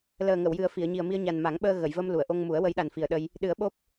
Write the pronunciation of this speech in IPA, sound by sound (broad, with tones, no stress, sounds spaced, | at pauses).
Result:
l əː˨˩ ŋ ə˨˩˨ w j ɨ˨˩ ə̯ f i˨˩˨ ə̯ ɲ i˨˩ ə̯ m i˧ ə̯ ɲ a˨˩ n m a˨˩˦ ŋ ɓ əː˧ ɣ ə˨˩˨ j v ə˧ m l u˨˩˨ ə̯ ʔ o˧ ŋ m u˨˩˦ ə̯ w ə˧˥ j ɗ a˨˩ n f i˨˩ ə̯ ɗ ə˧ j | ɗ ɨ˨˩˦ ə̯ ɓ o˦˥ p̚